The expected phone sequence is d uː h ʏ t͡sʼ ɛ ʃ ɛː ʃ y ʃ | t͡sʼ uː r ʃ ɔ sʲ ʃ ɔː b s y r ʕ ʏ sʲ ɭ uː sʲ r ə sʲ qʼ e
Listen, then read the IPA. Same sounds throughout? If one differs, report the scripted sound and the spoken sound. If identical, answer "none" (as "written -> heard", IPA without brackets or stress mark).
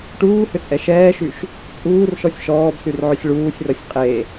d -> ʈ